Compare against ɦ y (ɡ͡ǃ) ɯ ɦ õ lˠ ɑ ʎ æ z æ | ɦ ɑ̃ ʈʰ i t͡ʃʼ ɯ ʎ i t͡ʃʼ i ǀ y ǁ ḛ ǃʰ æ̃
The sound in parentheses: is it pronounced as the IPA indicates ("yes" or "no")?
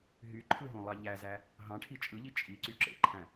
no